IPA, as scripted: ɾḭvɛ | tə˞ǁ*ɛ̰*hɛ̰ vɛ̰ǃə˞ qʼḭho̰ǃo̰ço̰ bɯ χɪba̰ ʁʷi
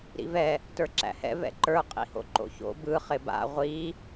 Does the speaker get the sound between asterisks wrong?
yes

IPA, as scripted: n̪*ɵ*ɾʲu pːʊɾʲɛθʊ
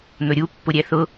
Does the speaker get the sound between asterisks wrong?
no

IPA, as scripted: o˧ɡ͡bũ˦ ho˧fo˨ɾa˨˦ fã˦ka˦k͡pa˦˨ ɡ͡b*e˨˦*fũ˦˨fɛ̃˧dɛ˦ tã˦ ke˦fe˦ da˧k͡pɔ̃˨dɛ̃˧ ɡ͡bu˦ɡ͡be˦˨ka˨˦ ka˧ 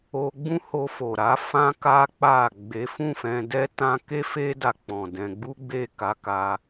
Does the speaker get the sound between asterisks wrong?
no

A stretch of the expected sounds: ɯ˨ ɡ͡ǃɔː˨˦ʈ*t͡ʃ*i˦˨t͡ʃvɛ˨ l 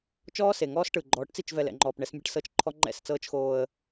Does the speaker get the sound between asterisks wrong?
yes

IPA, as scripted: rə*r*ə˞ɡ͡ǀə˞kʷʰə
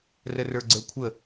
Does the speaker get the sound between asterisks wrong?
no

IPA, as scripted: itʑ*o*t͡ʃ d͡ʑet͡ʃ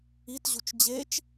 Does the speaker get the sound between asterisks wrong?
yes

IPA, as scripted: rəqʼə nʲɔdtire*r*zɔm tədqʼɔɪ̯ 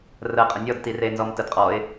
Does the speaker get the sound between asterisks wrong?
yes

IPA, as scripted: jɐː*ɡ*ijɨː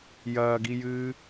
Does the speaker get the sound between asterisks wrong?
no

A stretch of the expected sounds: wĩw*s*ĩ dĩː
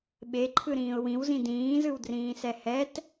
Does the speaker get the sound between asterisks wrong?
yes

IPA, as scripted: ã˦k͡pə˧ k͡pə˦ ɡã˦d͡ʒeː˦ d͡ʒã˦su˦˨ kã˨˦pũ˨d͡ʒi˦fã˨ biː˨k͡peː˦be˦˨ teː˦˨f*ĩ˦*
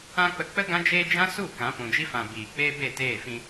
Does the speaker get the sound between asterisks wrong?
yes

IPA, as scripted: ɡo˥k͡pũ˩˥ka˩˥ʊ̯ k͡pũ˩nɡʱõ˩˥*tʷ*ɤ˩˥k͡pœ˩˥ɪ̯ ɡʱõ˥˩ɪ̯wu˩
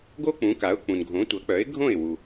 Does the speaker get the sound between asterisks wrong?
no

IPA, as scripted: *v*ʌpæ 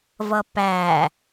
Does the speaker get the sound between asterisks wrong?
no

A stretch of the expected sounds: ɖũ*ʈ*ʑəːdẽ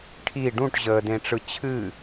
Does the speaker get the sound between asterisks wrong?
no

